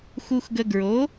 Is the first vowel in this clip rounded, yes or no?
yes